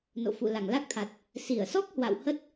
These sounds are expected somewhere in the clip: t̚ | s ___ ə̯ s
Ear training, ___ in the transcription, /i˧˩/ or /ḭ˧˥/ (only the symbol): i˧˩